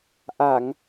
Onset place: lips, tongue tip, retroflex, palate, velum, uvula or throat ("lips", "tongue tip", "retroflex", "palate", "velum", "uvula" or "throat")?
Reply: throat